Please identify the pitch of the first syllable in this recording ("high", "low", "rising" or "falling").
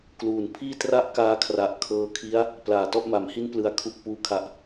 low